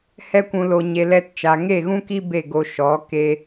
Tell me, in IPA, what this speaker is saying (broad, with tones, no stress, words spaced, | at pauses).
hɛ˦kʷũ˧lo˧ɲe˧ lɛ˧t t͡ʃa˨ŋe˦˨ɣũ˦ki˦ be˦˨ɡo˧ʃɔ˨˦ ke˧